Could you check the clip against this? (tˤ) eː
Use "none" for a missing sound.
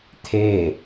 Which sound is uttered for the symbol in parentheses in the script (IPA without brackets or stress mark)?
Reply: t̪ʰ